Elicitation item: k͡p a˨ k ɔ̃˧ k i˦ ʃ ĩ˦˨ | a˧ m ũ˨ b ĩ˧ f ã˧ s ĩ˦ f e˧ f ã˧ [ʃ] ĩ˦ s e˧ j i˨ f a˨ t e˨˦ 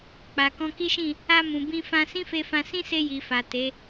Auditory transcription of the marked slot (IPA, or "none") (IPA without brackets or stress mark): s